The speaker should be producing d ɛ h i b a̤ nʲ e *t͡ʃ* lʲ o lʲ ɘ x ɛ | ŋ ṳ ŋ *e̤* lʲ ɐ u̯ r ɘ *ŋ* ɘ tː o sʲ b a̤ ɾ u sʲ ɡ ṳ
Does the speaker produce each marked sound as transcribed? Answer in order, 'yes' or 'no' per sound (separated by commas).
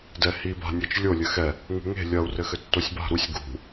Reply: yes, yes, no